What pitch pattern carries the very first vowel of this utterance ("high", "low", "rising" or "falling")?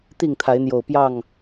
falling